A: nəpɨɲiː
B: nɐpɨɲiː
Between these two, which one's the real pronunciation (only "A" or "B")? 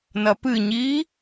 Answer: B